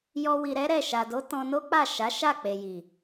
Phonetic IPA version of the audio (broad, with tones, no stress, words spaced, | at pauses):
jɔ˧ wi˧ɾɛ˦ɾɛ˦˨ ʃa˨do˨˦ tɔ̃˧no˦k͡pa˦˨ ʃa˨˦ʃa˦˨k͡pe˨ji˨